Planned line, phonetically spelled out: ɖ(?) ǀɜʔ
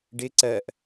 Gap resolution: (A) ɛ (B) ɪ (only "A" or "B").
B